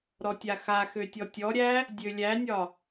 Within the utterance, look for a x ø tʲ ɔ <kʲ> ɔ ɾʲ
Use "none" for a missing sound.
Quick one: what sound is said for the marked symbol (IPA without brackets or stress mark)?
tʲ